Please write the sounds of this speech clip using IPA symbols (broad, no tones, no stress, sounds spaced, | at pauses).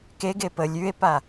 k e ɡ e p ə lʲ ʉ e̯ p a